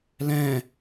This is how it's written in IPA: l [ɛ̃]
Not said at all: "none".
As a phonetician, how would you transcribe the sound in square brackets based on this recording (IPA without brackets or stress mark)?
ɛ̃